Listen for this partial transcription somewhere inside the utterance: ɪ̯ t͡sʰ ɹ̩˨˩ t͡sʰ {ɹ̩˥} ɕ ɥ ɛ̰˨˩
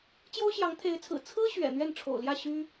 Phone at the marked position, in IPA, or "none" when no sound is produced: ɹ̩˥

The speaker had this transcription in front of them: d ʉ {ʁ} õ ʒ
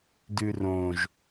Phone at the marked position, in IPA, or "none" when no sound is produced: r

